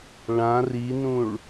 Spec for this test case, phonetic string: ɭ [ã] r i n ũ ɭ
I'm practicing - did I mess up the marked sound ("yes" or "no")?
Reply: no